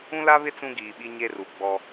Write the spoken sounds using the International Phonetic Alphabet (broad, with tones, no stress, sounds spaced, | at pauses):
ũ˦ l a˦ β ɪ˦ t͡s ũ˦ ɡ iː˨ ɓ i˦ ɲ e˦ r u˨ ɡ͡b ɔ˦